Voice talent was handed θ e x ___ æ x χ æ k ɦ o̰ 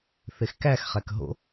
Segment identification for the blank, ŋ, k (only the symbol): k